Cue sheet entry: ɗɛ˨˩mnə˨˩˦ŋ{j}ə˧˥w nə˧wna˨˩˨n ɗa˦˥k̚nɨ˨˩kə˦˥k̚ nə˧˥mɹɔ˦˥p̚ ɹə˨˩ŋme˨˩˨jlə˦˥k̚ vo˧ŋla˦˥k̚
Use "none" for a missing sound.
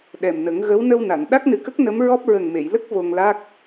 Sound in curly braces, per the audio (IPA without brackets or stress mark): ɣ